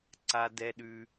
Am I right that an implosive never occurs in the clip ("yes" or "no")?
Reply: no